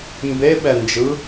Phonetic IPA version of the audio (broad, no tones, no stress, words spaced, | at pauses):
mbeɓɛnd͡ʒɯ